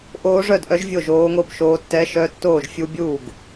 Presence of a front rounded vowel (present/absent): present